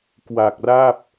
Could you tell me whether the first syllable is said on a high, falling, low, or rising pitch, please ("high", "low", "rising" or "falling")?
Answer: low